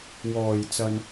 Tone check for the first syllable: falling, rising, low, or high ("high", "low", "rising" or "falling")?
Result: low